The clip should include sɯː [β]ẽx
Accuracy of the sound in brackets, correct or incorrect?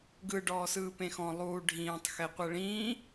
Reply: incorrect